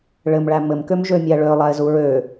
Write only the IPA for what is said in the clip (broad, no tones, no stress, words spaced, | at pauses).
ɭɘmɭæ mɘmkøm ʒømʲæɭø lˠaɪ̯zuɹø